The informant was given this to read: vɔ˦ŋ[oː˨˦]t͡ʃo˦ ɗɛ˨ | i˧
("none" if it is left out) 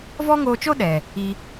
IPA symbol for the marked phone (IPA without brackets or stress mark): oː˧